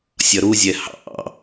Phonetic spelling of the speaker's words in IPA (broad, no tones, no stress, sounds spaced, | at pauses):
sʲ ʌ ɾ u zʲ ɛ h ɑ̰